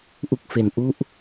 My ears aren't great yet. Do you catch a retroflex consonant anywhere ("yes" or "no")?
no